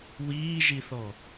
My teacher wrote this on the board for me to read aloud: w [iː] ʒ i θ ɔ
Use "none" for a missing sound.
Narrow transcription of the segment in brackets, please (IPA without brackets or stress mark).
iː